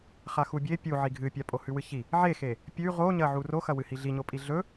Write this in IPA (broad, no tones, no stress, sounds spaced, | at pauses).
χ a x u bʲ e pʲ u ʕ i ɡʱ ɨ pʲ a pʼ o h ʉ w ɨ ç i | ʕ e x e | pʲ ʉ ʁ o ɲ ɐ ʕ u r o x ɐ w ɨ h i ɮ i ɲ o pʼ i ɮ ɵ